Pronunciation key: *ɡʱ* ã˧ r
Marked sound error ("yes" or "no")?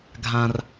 no